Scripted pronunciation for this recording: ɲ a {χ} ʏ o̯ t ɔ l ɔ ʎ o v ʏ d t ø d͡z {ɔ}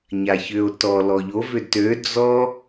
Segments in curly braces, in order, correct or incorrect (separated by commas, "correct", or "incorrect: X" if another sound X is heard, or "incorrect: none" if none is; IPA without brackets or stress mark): incorrect: ç, correct